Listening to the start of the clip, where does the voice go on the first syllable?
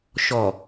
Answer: low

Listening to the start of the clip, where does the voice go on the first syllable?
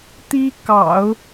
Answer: high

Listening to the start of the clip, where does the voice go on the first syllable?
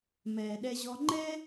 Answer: low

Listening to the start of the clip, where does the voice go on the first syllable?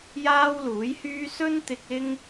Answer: high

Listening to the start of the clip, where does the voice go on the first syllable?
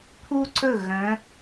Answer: high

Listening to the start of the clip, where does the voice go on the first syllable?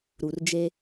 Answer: low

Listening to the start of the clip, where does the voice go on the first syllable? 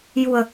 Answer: low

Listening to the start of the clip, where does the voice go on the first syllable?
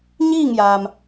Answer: falling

